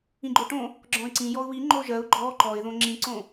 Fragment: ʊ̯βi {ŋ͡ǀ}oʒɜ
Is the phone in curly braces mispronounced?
yes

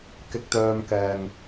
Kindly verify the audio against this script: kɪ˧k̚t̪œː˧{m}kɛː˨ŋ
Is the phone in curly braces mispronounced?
no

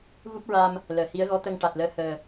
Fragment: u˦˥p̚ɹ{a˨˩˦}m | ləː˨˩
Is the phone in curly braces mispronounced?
yes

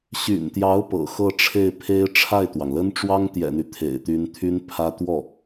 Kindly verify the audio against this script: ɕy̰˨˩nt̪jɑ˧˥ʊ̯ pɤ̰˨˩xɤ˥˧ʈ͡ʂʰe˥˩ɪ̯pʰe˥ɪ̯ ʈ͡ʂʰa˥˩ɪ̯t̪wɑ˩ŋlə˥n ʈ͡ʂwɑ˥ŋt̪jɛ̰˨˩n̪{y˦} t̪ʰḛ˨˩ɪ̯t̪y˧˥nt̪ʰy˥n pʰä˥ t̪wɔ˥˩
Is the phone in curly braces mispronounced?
no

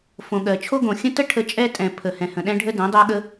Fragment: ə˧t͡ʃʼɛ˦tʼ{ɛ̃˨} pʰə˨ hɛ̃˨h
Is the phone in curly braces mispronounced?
no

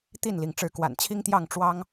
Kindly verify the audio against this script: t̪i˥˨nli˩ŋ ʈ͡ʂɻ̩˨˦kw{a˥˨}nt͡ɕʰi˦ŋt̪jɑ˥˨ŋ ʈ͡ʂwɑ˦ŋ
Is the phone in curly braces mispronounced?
yes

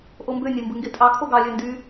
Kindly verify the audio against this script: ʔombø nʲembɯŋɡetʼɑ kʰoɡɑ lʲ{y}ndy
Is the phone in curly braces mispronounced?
yes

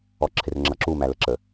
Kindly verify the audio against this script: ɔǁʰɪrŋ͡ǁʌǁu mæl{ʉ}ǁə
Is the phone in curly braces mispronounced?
yes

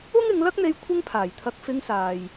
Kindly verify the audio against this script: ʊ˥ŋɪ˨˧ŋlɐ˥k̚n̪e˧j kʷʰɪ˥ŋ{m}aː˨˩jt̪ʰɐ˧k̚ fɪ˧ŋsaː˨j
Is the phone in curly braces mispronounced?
yes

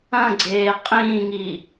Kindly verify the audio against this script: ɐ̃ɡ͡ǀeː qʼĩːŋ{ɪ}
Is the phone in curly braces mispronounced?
yes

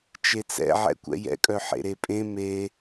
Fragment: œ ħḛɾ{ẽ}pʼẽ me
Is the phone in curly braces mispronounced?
yes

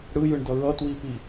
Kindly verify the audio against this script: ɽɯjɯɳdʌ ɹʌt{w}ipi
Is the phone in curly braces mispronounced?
no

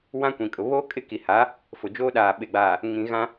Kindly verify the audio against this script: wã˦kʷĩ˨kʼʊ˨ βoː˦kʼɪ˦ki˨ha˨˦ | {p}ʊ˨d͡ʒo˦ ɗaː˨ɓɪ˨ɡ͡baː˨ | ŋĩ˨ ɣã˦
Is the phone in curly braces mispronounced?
yes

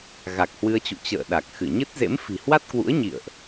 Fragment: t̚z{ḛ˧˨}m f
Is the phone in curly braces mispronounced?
yes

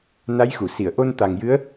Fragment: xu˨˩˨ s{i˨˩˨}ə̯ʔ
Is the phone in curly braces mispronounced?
no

